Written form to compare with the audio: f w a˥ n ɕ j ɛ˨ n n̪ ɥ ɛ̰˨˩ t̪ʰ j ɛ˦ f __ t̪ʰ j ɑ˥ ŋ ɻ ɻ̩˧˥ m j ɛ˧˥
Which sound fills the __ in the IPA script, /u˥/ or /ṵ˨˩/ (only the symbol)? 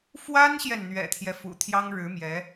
ṵ˨˩